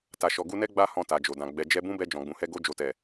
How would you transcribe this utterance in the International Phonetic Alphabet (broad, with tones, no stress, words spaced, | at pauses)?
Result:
ta˨ʃɔ˨ ɡu˧nɛ˦ ɡ͡ba˧ hɔ̃˧ta˨d͡ʒo˨dã˨ ɡ͡bɛ˨ d͡ʒɛ˧bũ˦bɛ˧ d͡ʒɔ̃˨ɡ͡bũ˨hɛ˧ ɡo˧ d͡ʒo˨tɛ˨